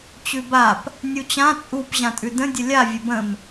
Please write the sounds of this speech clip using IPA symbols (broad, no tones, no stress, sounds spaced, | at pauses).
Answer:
t͡ɕ ʉ b a p | nʲ u t͡ɕ ã t͡sʼ u p ʑ ã tʼ ʉ d ə̃ dʲ ə lʲ a vʲ ə b ə̃ m